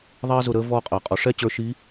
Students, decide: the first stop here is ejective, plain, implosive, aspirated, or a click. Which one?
ejective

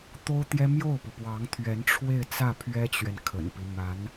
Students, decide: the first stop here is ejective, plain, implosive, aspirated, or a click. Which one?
plain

